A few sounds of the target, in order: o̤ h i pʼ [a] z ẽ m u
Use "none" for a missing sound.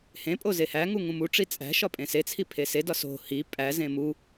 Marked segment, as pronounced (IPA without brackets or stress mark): æ